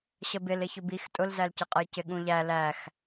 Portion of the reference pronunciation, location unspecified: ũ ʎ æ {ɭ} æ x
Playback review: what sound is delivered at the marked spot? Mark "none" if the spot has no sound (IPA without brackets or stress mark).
l